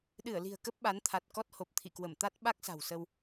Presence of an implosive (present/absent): present